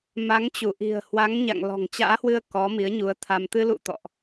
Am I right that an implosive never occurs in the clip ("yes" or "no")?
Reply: yes